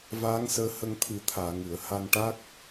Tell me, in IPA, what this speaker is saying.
v aː˧˥ ŋ s əː˧ h ə˧ ŋ t̪ʰ ɨ˨˩˦ t̪ʰ aː˨˩˨ ŋ ɨ˨˩˨ ə̯ h a˧ n ʈ a˦˥ k̚

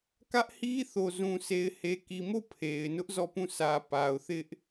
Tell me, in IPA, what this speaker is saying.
k ä˦ ʔ h i˦ θ o˨ z ũ˨ s e˨ ɪ̯ h e˨ k i˨ m o˦˨ pʰ e˨ ɪ̯ n ʊ˦ ʔ z ɔ˦˨ p ũ˦˨ s ä˨ p a˨ ʊ̯ θ ɪ˦ ʔ

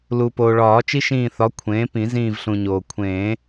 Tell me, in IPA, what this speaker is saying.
l u˩ p oː˩ ɭ ɒː˨˩˦ t͡ʃ i˦ ʃ ĩː˧˩ θ ɒ˩˥ kʷʰ ẽː˩˥ p ĩ˨˩˦ z ĩː˧˩ v ɬ ũ˩ ɲ oː˩ kʷʰ ẽː˨˩˦

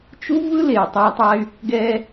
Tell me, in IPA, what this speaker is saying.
t͡ʃ u˦ v ɯ˦ l e˨ y̯ tˤ a˧ tˤ a˧ y̯ | ɡ ɛ˧

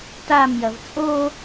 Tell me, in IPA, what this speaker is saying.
t a m j ɐ v t͡sʼ o

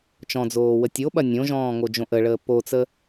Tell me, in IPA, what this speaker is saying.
t͡ʃ ɔ̃ d͡z oː w ə tʲ o ɓ ɐ nʲ õ ʒ ɔ̃ː ŋ o d͡ʒ õ ʔ ə ɭ əː p o t͡s ə

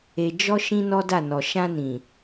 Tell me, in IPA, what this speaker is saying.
e˨ d͡ʒ ɔ˧ ʃ ĩ˦ n ɔ˦ d a˦˨ n ɔ˨ ʃ ã˧ n ĩ˨

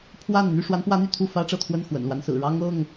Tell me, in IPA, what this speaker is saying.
pʰ w a˥˨ n n̪ y˥˨ ʂ w a˨˦ n p w ä˨˦ n̪ y˥˨ t̪ʰ u˥˨ f ä˦ ʈ͡ʂ ɤ˥˨ t̪ʰ w ə˥˨ n x w ə̰˨˩ n l w a˦ n s ɹ̩˨˩ ɻ ɑ˦ ŋ ɤ˥˨ ŋ

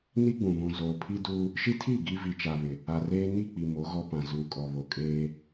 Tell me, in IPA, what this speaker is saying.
n i˦ ɡ͡b ũ˨ β ũ˨ z oː˨ pʰ i˦ d uː˦ | ʃ i˦ tʰ iː˦˨ ɡ i˦ v i˨ t͡ʃ a˨ β ɪ˨ | a˨ r eː˦ n i˦˨ k͡p i˨ m o˨˦ ɣ ɔ˦ p ã˨ z uː˨ kʼ ɔ˨ β o˨ kʼ eː˦

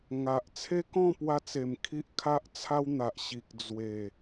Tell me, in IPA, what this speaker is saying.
ŋ a˨ ʔ t͡sʰ e˦ k ɔ̃˥˧ p w a˧ t͡s e˨˩ m kʰ i˦ ʔ kʰ a˦ ʔ t͡sʰ a˦ w n̪ a˨ ʔ ɕ i˨ k̚ d͡z w e˨˩

